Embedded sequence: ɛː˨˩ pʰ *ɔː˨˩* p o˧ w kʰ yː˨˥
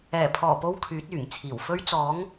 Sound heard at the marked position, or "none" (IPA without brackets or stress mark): ɔː˨˩